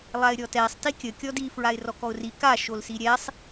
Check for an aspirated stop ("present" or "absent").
absent